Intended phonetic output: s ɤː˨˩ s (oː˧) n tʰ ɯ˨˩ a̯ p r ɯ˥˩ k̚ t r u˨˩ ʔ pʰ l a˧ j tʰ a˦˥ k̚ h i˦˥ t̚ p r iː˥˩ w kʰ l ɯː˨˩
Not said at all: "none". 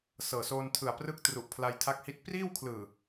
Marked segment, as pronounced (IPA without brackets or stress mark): oː˧